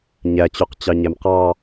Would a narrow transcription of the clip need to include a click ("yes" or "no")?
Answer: no